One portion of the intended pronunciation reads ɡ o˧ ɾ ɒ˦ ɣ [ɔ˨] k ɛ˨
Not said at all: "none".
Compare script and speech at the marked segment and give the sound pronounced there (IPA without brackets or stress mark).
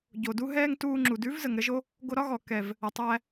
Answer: ɔ˨